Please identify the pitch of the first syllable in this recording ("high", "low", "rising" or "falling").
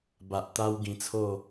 low